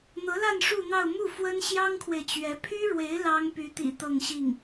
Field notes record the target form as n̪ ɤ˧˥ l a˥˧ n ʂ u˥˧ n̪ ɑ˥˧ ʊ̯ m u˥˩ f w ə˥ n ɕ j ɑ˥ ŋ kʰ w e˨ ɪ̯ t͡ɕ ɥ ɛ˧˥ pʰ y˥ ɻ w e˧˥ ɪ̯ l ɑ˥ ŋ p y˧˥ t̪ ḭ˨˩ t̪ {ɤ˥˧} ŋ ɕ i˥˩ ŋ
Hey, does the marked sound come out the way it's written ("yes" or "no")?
yes